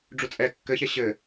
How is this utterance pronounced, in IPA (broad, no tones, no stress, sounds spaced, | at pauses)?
ɖ͡ʐ u t͡sʼ ɛ kː ɘ ç ɛ ɕ ɘ